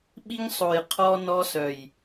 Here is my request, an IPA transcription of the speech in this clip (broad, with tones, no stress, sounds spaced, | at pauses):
ɓ i˦ ŋ sˤ o˨ j qʰ ɔ˦ n ɔ˦ s œ˨ j